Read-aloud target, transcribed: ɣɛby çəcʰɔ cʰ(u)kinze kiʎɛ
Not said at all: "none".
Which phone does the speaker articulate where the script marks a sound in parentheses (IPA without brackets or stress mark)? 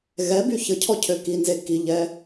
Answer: ø